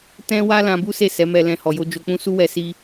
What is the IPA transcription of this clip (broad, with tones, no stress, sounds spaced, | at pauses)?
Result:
t ɛ̃˦ w a˦ l ã˧ b u˦ s e˦˨ s ɛ˨˦ m ɛ˧ l ɛ̃˧ h ɔ˨ j o˧ d͡ʒ o˧ k͡p ũ˦ s u˦ w ɛ˧ s i˧